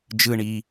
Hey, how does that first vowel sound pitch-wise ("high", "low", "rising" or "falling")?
low